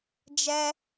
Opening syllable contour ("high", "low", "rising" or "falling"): high